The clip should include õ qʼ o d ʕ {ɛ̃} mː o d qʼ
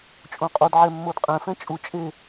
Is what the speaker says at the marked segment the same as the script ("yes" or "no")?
no